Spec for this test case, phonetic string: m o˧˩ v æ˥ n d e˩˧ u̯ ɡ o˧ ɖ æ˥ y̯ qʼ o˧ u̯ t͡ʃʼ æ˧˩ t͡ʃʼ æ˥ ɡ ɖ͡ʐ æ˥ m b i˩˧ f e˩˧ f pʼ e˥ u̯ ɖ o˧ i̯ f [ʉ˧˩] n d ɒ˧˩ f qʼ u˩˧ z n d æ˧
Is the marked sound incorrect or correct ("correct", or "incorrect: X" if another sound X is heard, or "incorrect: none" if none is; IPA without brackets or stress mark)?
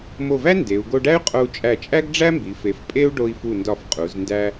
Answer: incorrect: u˧˩